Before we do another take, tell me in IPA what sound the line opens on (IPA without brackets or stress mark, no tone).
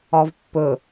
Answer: ɒ